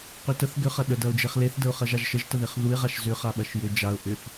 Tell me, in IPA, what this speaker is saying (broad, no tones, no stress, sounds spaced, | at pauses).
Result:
q ʏ t ə θ ɡ ʏ χ ɐ ɗ ə d ɐ ʊ̯ d͡ʒ e χ l e θ d ə ʊ̯ χ ɐ ʒ a ʒ ʃ ə ʒ t ə ð e χ ð u ɪ̯ ʁ a ʃ z ʏ χ a ɓ ɐ ʃ j ʏ d͡ʒ a ʊ̯ ʔ ʏ θ